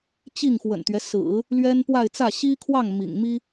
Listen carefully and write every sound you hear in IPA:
t͡ɕ i˥˩ ŋ x w ə̰˨˩ n t̪ ɥ ɛ˦ s ɹ̩˨˩˦ | l ɥ ɛ˥ n p w a˥˧ ɪ̯ t͡s ä˥˩ ɕ i˥ kʰ w ɑ˥˩ ŋ m ḭ˨˩ ŋ m i˥

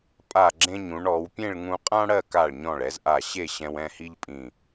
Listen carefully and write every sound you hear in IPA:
pʼ a˧˩ ɡ͡ǁ ẽ˧ ɲ ũ˩˧ ɳ ɔ˩˧ w pʲ ẽ˥˧ ɭ ŋ ũ˧ qʼ ã˥ ɽ ɜ˥˧ k a˧˩ ɭ ɲ ɔ̃˧˩ ɭ ɛ˩˧ z ʔ a˧˩ ɕ e˥˧ ɕ ɛ̃˧ w ɛ̃˥˧ h i˥ ʎ pʼ ĩ˧˩

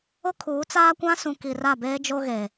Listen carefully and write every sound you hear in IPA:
ʊ˦ kʰ uː˨˦ t͡s aː˦ kʷ ã˦ s ũ˨ k i˨ r a˦˨ b eː˦ d͡ʒ o˦ ɣ e˨

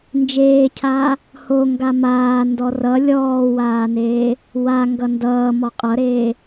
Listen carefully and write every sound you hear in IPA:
n d͡ʒ eː cʰ aː | h o ŋ ɡ a m aː n d ɔ r ʌ lʲ ɔː w aː n eː | w a ŋ ɡ ʌ n d ʌː m ɔ qʼ ʌ ɾ eː

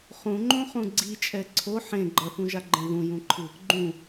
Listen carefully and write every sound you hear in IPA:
χ ũ ŋ͡ǃ õ χ ũ ɡ͡ǀ i t͡ʃʼ ɛ ǀʰ o ħ ẽ ɡ͡ǃ ʌ θ ũ ʒ a ɡ͡ǃ ɛ̃ ð ũ j ũ ǃʰ ɯ | ɡ͡ǃ ũ

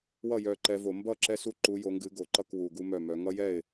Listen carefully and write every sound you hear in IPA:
w ʌ˥˩ j œ˨˦ ǃ ɛ˨˦ v o˧˩˧ m b ʌ˥˩ ǁ ɛ˦ s u˦ ǃ u˨˦ j o˨˦ ŋ ɡ ɨ˨˦ ɡ o˨˩ ǃ ʌ˥˩ k w u˨˩ ɡ u˦ m œ˥˩ m œ˨˦ ŋ ʌ˦ j ɛ˥˩ ɪ̯

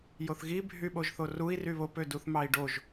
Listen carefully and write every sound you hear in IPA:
j o θ ɣ i bʱ y ɓ o ʒ θ o r u i̯ r y β o p ø d u θ m ɑ i̯ ɖ o ʒ

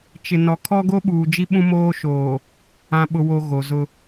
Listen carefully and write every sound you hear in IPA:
t͡ʃ ɪ˨ n ɔ˨ kʰ ɔ˦ ɡ o˦ ɓ uː˨ d͡ʒ i˦ ɓ ũ˦ m oː˦ ʃ oː˨ | ã˨ ɓ ʊ˨ w o˨ ɣ o˨ z ʊ˦

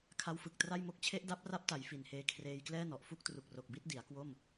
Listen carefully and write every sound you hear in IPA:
kʰ a˦˥ w f ɯ˨˩ k̚ t r a˥˩ j m o˥˩ k̚ t͡ɕʰ e˦˥ ʔ d a˦˥ p̚ r a˦˥ p̚ t a˩˦ j f i˨˩ n h eː˧ kʰ r eː˧ j k l ɛː˥˩ n ɔ˨˩ ʔ f u˥˩ k̚ t r u˨˩ k̚ r o˨˩ k̚ b i˥˩ t̚ d i˩˦ a̯ k w o˥˩ m

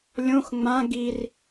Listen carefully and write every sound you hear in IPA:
lʲ õ x ŋ͡m ã ɡ i r

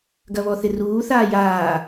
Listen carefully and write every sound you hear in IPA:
ɡ ɐ β ɔ θ ɪ r uː θ aː j aː

